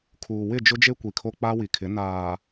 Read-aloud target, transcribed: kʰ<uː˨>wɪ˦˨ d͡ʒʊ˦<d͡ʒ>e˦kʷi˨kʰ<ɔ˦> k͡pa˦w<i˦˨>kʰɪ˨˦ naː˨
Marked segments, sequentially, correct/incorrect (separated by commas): correct, correct, incorrect, incorrect